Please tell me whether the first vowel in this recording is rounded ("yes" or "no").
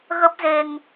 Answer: no